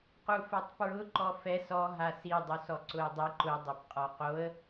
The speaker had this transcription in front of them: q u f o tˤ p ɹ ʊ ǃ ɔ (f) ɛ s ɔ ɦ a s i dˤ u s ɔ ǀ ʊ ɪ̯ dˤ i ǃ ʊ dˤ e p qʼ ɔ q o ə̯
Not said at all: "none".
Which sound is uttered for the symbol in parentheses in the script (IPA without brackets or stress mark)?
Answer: f